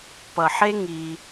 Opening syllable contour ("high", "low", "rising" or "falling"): low